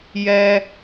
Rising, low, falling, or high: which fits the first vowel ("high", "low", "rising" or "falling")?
high